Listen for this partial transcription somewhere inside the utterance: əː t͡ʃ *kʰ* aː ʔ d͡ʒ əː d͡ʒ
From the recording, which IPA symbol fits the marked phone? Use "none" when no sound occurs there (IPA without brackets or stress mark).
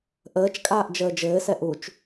kʼ